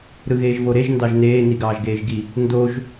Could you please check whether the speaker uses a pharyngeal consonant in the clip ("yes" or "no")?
no